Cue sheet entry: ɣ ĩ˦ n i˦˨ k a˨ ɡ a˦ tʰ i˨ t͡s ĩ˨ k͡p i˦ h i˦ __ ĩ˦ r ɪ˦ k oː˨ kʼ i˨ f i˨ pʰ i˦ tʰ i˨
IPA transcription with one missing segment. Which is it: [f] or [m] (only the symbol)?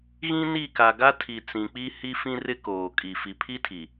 f